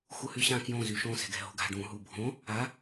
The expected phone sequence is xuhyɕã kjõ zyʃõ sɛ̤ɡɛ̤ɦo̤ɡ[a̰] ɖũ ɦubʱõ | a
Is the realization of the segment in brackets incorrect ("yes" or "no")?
yes